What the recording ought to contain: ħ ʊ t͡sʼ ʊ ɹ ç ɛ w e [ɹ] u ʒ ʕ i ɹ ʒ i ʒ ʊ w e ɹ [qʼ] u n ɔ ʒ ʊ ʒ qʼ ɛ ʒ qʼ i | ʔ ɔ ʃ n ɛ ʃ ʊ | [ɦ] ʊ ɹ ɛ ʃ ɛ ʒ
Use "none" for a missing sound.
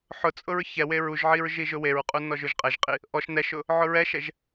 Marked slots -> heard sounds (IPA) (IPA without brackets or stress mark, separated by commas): ɹ, qʼ, ʕ